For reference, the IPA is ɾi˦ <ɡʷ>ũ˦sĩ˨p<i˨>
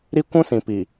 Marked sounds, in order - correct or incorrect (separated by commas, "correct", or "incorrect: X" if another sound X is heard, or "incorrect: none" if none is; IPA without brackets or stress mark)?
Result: incorrect: kʷ, correct